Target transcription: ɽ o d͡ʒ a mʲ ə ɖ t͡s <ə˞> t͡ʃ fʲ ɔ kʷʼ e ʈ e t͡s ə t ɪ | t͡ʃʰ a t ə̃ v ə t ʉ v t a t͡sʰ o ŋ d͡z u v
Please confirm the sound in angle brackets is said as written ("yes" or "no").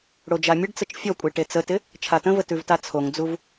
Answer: no